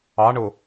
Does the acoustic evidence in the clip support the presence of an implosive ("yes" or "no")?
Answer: no